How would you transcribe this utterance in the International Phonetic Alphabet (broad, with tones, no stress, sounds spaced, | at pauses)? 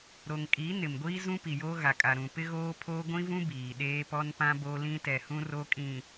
ɾ o˨ ŋ kʼ i˨˦ n ɪ˨ m ɡʷ iː˦ z ũ˦ p i˨ j oː˦ ɣ a˨ kʼ a˨ ɾ ũ˨ p ɪ˦ ɣ oː˦ pʰ oː˦ ɡʷ ĩ˦ v ũ˦ b iː˨ ɗ eː˦ p ɔ˦ n p ã˦ b o˦ l ĩ˦ t ɛ˨ h ũ˦ r o˦ kʼ ĩ˨